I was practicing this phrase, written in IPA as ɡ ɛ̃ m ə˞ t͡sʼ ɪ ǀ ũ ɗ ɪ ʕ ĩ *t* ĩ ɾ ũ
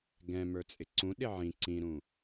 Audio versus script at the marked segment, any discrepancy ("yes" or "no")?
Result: yes